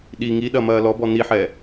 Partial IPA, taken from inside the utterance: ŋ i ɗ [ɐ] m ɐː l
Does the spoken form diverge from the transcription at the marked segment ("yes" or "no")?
no